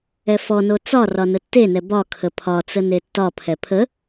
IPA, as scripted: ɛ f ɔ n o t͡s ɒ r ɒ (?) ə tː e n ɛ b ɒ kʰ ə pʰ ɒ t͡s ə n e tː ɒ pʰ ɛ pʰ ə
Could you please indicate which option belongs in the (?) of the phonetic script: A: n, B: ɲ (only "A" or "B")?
A